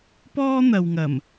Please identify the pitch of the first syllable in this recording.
high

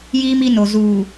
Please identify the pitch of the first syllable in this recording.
high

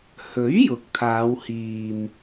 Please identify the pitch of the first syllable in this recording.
rising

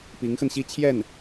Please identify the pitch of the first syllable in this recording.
rising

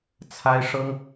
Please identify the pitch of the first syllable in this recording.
high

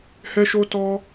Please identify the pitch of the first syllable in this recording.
high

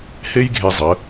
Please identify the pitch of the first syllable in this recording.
high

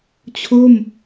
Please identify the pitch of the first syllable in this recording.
falling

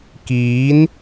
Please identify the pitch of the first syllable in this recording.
rising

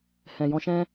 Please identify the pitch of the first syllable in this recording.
low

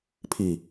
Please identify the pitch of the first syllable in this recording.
low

